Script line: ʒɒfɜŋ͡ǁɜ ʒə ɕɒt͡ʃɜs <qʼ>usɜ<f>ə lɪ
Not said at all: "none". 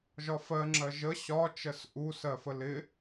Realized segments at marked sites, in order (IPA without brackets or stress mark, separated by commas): ʔ, f